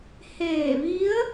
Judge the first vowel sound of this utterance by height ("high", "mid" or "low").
mid